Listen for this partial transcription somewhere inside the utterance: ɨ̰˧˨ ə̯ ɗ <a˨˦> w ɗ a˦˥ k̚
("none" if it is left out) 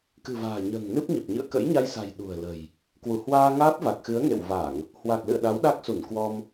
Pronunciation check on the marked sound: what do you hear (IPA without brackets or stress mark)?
a˨˦